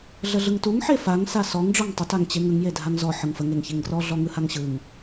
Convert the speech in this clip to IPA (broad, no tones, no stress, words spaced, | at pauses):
ɮəɮɯŋtuŋ ħefaŋ sasɔŋ ɖ͡ʐɔŋtˤə taŋt͡ɕeŋəŋ jedʱaŋzɔ ħɯŋfə ŋeŋçeŋɡrɔ ɮɔŋɯhaŋɕɯŋ